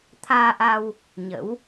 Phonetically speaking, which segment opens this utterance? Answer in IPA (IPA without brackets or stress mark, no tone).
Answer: t̪ʰ